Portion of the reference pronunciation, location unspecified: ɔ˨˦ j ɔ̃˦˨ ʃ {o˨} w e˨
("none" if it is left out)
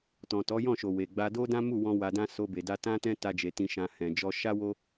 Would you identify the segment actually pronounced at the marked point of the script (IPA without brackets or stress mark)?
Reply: o˨